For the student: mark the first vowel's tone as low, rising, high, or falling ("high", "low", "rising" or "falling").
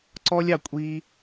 high